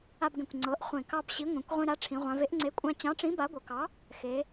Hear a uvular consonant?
yes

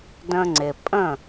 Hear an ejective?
yes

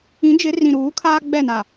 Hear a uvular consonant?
no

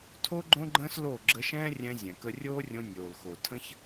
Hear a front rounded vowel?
no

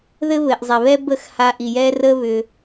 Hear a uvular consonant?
no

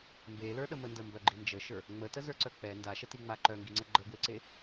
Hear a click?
yes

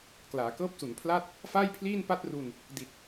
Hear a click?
no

